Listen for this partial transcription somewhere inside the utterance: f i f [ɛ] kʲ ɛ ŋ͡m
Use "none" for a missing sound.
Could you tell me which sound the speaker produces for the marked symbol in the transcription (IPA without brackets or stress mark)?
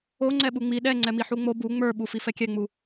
ɛ